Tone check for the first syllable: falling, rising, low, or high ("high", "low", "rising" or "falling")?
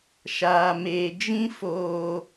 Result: low